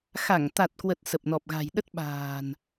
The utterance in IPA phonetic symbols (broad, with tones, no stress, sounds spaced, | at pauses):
x a˧˩ ŋ t̪ a˨˩ t̚ k w ə˨˩ t̚ s ə˨˩ p̚ n ɔ˨˩ p̚ ɣ a̤˨˩ j ɗ ə˦˥ t̚ ɓ a̤ː˨˩ n